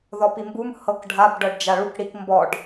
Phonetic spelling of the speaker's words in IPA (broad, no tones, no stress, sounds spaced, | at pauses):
ð ɔ p i m b u m h ɤ k ɖʱ a b ɖ ɤ ɖ d͡ʒ a ɭ u k ɽ i k m b ɔ ɖ